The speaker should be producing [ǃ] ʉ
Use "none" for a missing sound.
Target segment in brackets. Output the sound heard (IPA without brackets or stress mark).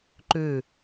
ǃ